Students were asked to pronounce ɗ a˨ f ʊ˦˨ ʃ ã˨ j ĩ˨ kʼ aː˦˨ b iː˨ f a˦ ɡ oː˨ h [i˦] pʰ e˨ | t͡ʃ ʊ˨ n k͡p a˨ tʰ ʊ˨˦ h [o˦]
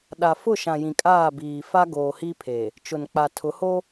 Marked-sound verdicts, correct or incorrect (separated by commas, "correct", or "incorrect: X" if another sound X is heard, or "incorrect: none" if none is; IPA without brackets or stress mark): correct, correct